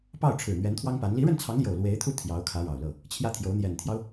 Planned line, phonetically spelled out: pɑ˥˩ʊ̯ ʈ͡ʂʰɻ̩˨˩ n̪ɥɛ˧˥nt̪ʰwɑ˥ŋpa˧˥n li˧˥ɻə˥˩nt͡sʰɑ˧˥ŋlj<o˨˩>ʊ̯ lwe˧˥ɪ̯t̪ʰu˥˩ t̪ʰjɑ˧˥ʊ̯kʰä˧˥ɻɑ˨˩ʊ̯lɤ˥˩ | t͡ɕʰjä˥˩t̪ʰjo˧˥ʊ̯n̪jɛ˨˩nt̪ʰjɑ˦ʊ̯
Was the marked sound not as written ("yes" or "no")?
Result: no